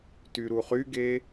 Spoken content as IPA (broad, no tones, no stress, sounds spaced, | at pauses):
t y ɾ u χ y ɡ e